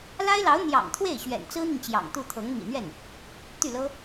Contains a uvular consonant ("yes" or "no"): no